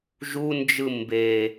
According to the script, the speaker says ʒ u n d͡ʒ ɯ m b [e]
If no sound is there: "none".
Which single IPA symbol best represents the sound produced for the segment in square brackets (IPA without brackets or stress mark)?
e